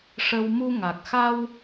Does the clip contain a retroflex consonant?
yes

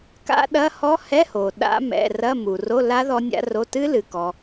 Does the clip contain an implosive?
yes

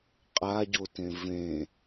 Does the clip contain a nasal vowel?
yes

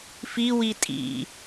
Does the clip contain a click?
no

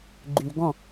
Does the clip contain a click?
yes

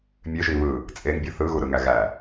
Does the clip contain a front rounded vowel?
yes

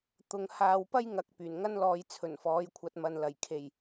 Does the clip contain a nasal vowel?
no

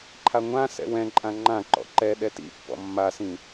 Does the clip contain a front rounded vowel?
no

